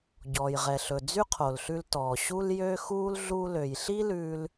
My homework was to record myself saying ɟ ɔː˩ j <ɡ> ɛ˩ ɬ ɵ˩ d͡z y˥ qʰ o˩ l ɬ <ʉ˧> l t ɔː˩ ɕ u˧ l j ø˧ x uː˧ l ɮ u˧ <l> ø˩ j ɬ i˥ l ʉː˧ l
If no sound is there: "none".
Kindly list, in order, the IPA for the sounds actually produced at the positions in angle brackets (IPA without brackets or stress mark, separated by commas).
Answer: ʁ, ʉ˧, l